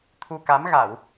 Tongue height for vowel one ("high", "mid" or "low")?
high